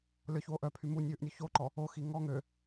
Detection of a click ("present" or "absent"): present